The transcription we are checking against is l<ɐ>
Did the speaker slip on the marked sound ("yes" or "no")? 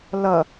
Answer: no